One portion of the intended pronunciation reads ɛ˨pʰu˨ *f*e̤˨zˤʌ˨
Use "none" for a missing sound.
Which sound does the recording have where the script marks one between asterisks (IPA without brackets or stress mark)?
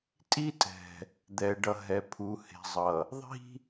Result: h